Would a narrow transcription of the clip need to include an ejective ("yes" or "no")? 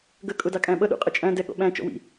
yes